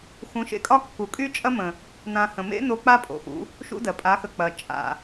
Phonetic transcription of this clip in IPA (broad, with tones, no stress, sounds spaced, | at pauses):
x ũ˨˦ ʃ ḛ˧ kʼ ɒ˦ kː u˨ kʼ y˦ t͡ʃʼ ɐ˦ m ə̃˨ | n ã˧ h ə̃˨ m ḛ˦ n o˧ k͡p a˦ pʼ o̰˨ x ṵ˧ | ʃ ṵ˦ d ɜ˨ pʼ a˨˦ x ə˨ k͡p ɐ˨ t͡ʃʼ a̰˨